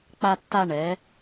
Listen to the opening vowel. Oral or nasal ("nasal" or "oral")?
oral